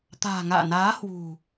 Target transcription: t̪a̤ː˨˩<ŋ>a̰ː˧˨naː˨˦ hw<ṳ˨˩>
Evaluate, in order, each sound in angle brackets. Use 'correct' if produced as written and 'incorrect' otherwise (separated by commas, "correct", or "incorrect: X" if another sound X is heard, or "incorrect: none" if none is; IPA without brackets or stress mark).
correct, correct